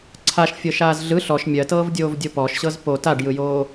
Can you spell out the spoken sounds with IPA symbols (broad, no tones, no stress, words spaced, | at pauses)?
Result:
ǀʰaʃfʲɤʃaːz ɮɯ ɬɔʃ mʲɜtɤːvdʲoːvdʲo pɔʃɕɤz po taɖjɯjoː